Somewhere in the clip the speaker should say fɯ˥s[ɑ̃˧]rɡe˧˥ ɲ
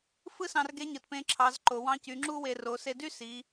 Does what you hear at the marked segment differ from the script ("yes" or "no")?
no